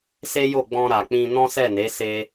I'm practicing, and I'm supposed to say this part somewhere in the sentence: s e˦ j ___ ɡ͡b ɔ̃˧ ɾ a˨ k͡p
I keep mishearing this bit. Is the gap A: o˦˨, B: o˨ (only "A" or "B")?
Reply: A